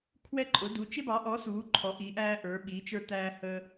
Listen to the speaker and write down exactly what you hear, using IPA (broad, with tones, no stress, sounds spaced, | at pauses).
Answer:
kʰ w ɛ˥ ǃʼ ʊ˨˥ d u˨˥ t͡ʃ ɪ˥ b ɑ˨˥ ʔ ɔ˨˥ s uː˨˥ ǃʰ ɔ˨˥ ʔ i˨˥ ʔ æː˥ ʔ ə˞˨˥ ɓ i˨˥ t͡ʃ ə˞˥ t æː˥ h əː˥